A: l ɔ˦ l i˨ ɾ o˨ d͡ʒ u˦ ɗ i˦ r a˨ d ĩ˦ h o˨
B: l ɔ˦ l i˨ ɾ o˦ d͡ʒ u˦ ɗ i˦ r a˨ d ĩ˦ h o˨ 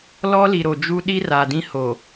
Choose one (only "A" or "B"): A